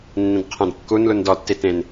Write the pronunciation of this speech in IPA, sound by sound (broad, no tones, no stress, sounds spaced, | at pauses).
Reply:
nː ĩ d qʰ ɛ̃ d kː u n l u n d ɔ tː i t ẽ n